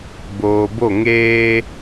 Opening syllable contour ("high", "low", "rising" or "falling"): low